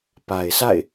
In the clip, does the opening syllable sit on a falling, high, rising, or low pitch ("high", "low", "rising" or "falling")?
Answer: low